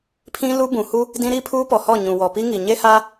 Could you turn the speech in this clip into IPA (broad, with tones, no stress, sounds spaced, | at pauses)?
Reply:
pʰ ĩ˦ l u˦ b ũ˨ h u˦ | d ĩ˦ ɾ i˦ pʰ uː˦ p ɔ˨ h ɔ˦˨ ɲ ũ˨ w ɔ˨ p i˦ ŋ i˨ ɲ e˦ h a˦